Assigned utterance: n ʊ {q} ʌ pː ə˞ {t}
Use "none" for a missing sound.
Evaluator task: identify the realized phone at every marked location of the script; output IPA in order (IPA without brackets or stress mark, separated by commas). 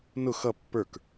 x, k